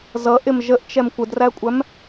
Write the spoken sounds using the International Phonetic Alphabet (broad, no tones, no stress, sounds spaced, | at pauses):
z ʌ ʔ ɪ m ʒ ə ʔ t͡ʃ ɛ m kʷ ə d r æ kʷʼ æ m